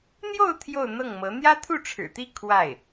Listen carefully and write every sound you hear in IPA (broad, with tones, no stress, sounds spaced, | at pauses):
n̪ j o˥˧ ʊ̯ t̪ʰ j o˥˧ ʊ̯ n̪ ɤ˥˩ ŋ m ɤ˧˥ n̪ j ä˥ t̪ʰ u˥˩ ʈ͡ʂʰ ɻ̩˨˩ t̪ i˥˧ kʰ w a˥˩ ɪ̯